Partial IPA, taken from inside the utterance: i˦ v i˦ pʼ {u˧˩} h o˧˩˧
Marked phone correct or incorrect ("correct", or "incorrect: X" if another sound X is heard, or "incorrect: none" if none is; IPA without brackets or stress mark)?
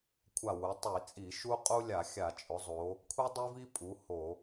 incorrect: u˩˧